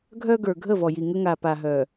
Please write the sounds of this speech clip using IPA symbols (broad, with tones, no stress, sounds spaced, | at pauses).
ɡʱ œ˦ ɡ ə˞˨ ɡʱ ə˦˨ v ɔ˨ j i˨ ŋ ə˦ ŋ a˨ p a˨ ɦ œ˨